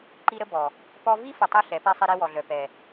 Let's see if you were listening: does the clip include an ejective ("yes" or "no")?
no